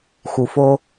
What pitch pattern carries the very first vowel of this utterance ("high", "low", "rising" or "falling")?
low